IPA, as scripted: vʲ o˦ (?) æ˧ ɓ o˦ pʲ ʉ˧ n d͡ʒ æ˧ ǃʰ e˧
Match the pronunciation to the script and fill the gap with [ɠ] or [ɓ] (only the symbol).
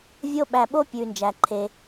ɓ